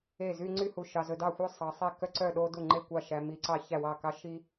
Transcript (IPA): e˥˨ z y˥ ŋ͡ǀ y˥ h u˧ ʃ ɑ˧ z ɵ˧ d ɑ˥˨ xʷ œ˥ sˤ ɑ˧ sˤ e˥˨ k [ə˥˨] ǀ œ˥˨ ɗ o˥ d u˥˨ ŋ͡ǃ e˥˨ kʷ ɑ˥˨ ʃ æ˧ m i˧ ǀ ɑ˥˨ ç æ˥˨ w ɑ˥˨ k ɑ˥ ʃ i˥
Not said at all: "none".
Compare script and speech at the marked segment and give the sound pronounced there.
œ˥˨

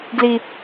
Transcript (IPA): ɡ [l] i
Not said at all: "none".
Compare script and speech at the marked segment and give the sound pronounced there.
l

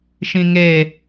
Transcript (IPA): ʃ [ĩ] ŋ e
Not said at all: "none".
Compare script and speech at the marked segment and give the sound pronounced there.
ĩ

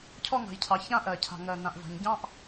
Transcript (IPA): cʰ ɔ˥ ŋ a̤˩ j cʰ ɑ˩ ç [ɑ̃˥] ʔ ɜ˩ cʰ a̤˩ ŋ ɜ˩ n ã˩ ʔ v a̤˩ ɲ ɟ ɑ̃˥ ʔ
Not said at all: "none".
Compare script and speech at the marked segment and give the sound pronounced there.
ã˥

